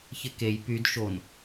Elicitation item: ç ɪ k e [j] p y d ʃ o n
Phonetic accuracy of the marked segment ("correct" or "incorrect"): correct